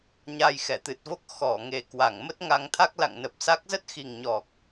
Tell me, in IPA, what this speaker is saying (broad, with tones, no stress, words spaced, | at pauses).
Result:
ɲa˧jxɛ˧˩t̪ɨ˨˩t̚vo˦˥k̚ xɔ˧˩ ŋe˨˩kwa˧˩ŋ mə˦˥t̚ŋa˧ŋ t̪ʰa˦˥k̚la̰˧˨ŋnə˨˩p̚sa˦˥k̚ zə˦˥t̚xi˨˩ŋɲɔ˨˩k̚